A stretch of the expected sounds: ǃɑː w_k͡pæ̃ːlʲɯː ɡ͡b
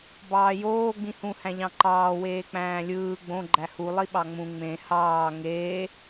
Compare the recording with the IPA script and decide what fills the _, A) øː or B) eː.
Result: B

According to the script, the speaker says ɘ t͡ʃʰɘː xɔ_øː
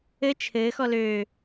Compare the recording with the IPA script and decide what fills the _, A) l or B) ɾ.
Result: A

